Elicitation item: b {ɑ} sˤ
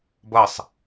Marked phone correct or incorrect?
incorrect